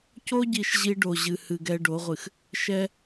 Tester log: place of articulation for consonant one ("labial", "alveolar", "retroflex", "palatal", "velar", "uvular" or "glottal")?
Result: palatal